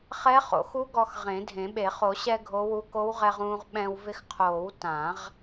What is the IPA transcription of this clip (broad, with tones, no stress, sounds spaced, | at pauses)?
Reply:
χ ɛ˧˥ χ o̰˨˩˦ x u˧˥ ɡ ɔ˧ x ʁ ẽ˨˩˦ dʱ ẽ˨˩˦ ɓ e˨˩˦ χ o˨˩˦ ɕ ɛ˧ ɡʱ o˧˥ w u˧˥ k o˧˥ w ʁ ɛ˧ ʁ ũː˧ ʁ ɓ ɛ̃˧ w v ɪ˧ x qʰ oː˨˩˦ w t ã˨˩˦ ʁ